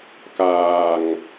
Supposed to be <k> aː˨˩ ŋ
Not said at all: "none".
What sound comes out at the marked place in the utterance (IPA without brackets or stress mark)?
k